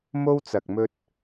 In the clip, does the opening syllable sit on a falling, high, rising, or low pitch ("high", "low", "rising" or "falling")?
high